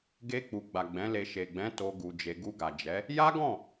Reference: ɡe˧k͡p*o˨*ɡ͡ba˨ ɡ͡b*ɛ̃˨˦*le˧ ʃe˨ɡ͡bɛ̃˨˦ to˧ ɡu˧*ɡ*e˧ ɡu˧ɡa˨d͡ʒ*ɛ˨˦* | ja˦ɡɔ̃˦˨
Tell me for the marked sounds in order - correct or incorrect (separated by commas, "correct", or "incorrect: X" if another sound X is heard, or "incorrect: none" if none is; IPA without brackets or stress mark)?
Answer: incorrect: u˨, correct, incorrect: d͡ʒ, correct